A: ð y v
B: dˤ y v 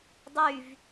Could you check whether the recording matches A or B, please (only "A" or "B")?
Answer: B